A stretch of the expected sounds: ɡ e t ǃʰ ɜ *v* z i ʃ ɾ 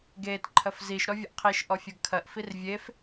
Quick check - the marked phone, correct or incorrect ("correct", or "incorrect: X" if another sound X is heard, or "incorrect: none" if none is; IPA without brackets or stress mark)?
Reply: incorrect: f